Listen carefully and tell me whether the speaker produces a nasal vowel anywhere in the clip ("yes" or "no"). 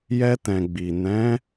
yes